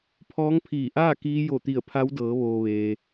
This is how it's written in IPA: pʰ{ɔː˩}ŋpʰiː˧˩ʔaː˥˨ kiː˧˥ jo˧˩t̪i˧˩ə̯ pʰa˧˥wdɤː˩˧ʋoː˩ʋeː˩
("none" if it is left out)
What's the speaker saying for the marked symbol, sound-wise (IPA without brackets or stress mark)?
ɔː˧˥